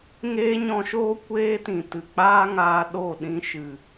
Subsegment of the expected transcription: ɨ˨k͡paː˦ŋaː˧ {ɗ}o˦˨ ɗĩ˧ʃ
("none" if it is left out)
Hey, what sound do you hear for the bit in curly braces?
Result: ɗ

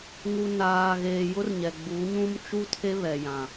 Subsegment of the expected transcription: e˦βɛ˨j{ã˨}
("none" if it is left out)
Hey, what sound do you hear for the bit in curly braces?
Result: ã˨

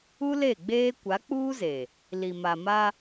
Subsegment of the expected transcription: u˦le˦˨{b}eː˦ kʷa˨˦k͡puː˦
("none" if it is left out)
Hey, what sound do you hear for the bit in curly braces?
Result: ɡ͡b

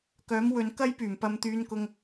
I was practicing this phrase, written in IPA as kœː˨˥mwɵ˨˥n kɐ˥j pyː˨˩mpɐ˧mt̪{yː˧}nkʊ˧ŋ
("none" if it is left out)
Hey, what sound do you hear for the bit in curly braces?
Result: yː˧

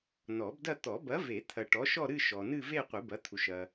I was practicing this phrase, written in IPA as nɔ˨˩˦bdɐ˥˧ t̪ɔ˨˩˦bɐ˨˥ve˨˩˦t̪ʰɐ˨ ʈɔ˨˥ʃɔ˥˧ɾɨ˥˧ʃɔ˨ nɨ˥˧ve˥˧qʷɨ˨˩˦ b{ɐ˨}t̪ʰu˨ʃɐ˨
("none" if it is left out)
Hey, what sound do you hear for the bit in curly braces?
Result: ɐ˨˥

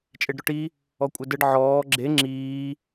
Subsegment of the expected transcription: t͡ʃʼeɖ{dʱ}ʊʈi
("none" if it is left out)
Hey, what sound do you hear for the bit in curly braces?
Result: ɾ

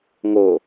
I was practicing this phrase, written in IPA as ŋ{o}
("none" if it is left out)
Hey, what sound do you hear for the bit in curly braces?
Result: o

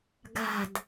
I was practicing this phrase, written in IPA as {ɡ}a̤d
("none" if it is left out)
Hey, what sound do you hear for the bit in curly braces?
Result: ɡ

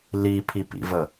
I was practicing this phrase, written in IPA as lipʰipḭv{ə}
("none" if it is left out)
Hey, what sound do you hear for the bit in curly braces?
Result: ə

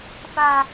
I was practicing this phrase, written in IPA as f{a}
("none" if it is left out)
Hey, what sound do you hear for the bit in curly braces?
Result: a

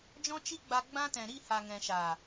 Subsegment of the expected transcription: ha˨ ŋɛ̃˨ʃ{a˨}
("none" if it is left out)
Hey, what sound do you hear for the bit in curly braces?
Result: a˨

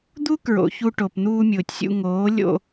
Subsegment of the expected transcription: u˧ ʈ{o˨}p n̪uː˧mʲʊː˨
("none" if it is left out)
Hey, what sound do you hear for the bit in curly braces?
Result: o˨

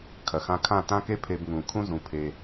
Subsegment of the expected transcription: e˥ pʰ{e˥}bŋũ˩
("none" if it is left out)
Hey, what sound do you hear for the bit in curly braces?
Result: e˧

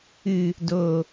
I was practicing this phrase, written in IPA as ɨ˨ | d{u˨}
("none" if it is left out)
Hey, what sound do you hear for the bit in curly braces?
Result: o˨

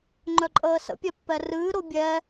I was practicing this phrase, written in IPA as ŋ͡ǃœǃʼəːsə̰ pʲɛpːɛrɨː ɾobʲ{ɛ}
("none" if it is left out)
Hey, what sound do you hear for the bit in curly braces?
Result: ɛ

